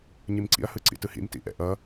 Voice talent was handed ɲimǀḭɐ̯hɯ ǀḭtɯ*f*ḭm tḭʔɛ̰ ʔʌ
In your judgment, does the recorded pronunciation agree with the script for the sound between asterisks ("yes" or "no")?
no